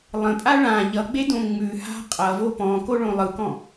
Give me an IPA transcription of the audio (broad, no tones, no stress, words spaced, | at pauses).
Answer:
lˠə̃pʼa ɭã ʎʌɡ͡bedõ ŋ͡mʉha̤ qʼʌvo pɔ̃koɭõ lˠɯkɔ̃